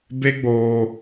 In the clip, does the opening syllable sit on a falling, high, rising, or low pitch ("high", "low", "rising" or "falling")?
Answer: high